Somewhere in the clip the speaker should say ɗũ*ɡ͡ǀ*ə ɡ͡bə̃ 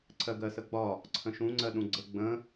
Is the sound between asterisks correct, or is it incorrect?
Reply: correct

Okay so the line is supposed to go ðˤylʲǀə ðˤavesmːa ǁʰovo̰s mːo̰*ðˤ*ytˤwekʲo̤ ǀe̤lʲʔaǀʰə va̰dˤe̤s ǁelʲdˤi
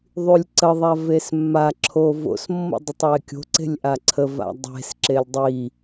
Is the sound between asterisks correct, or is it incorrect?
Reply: incorrect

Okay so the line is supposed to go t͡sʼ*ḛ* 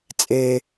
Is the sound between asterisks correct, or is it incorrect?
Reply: incorrect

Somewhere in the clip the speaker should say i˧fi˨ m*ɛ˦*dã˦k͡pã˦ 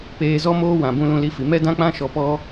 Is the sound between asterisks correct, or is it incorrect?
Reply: correct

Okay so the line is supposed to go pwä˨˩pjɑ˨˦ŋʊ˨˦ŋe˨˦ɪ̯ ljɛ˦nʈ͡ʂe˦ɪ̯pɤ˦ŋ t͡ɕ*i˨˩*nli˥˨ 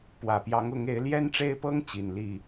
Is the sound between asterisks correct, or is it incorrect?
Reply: correct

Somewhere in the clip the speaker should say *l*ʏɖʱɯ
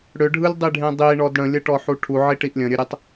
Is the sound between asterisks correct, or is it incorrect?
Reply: incorrect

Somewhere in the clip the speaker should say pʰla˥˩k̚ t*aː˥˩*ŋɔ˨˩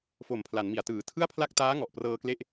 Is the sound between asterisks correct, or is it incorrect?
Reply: incorrect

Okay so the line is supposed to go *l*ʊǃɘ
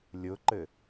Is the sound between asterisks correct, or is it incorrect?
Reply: incorrect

